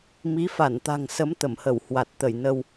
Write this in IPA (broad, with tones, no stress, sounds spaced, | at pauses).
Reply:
m i˨˦ f a˧˩ n t̪ a̤˨˩ ŋ s ə˨˦ m t̪ ə˧˩ m h ə˧˩ w h w a˨˩ t̚ t̪ ə˧˩ j n ə˧ w